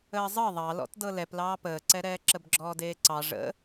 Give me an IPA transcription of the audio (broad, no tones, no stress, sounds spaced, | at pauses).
əː zˤ ɤ ðˤ ɑ l ɔ̰ t d ɤ l ɛ p l ɑː p əː ǀ ɛ ɾ ɛː ǁ ə b ɡ͡ǁ ɔː d eː ǀ ɑ ʐ ə̰